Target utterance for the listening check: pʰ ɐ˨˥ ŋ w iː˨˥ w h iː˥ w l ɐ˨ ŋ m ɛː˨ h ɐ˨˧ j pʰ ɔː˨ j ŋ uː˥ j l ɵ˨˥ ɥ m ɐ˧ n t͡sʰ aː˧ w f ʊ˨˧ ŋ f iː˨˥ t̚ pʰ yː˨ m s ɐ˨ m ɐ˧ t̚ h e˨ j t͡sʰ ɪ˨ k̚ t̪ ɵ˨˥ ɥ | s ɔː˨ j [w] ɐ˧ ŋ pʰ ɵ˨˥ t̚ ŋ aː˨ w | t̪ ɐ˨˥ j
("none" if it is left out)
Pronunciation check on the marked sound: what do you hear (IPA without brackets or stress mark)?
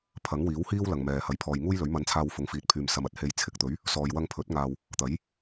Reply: w